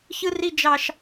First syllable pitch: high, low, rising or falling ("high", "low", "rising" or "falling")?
high